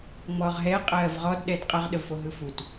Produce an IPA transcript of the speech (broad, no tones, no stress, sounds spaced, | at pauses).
ŋ͡m ɔ ʁ ɦ ɛ qʼ ɜː v ʁ ɔ d ɗ ɛ d qʼ ʌ ʁ ɗ ə v f o ɦ ɯ f u t